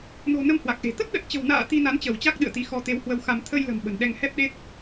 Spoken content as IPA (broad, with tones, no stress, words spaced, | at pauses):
no̤˨˩ nə˧m hwa˨˩k̚ʔe̤˨˩ t̪ə˦˥t̚ɗə˨˩t̚t͡ɕə̤˨˩wna̰ː˧˨ t̪i˧na˨˦nt͡ɕə˧˩wt͡ɕa˦˥k̚ ɗɨ̰˧˨ə̯t̪i˨˦xɔ˧ t̪e˨˦whwə˧wxa˧m t̪ʰə˧jlə̤˨˩m ɓə̤˨˩nɗɛ˧ŋ hɛ˦˥p̚ɗe˦˥t̚